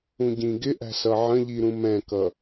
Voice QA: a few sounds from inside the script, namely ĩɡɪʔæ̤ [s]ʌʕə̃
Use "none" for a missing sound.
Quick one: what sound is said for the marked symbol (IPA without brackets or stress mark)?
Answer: s